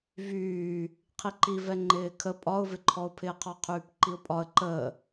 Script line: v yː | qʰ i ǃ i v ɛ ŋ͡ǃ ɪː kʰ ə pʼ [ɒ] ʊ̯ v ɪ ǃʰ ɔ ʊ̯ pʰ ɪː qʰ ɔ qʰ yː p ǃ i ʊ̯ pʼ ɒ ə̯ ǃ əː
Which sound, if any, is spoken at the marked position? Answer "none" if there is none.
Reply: ɒ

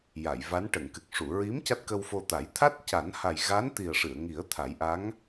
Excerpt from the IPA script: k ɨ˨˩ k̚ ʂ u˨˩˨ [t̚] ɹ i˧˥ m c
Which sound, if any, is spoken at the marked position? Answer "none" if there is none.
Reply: none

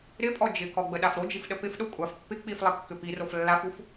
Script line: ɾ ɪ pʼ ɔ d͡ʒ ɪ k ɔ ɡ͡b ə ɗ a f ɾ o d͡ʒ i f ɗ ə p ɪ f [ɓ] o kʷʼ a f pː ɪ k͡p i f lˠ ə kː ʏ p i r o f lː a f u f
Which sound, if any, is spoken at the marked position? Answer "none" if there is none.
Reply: ɗ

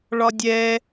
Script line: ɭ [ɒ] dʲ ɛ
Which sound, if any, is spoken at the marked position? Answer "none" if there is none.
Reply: ɒ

